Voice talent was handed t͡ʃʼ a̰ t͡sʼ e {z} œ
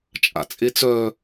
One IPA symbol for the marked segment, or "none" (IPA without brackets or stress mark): t͡s